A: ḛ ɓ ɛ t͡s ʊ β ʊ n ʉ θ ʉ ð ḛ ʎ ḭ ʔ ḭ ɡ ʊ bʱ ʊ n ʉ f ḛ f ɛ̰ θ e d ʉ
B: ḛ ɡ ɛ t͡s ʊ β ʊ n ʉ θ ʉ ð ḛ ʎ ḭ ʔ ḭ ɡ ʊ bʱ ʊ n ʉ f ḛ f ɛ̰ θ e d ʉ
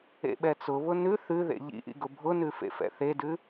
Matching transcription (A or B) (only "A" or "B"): A